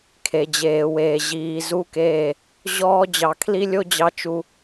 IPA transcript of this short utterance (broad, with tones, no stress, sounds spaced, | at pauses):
kʰ e˨ d͡ʑ eː˨ w eː˨ ʑ iː˨ z u˦ k eː˦˨ | ʑ ɔː˦ d͡ʑ ɑ˨ kʰ l i˦ lʲ o˦ d͡ʑ ɑ˦ t͡ʃ u˦